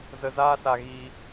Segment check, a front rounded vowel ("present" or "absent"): absent